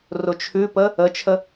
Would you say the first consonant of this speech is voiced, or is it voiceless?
voiced